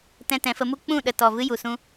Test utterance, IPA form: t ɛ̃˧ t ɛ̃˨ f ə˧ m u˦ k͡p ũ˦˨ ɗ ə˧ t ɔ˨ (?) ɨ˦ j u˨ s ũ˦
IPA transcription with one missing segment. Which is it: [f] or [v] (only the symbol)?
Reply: v